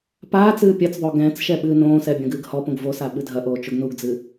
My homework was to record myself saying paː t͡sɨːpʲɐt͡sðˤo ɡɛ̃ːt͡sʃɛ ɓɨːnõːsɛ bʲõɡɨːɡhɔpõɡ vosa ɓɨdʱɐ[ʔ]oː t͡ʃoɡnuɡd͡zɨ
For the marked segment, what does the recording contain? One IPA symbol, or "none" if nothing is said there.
ʔ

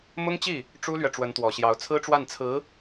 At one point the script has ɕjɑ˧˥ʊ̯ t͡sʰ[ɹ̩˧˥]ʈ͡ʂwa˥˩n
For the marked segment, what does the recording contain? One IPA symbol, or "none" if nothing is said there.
ɹ̩˥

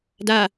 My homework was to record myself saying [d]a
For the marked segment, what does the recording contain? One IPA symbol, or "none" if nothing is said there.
d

